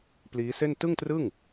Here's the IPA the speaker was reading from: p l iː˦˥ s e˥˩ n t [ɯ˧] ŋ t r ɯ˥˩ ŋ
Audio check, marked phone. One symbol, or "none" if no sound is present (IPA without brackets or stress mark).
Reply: ɯ˥˩